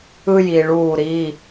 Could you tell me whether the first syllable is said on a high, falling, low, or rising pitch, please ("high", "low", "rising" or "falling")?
high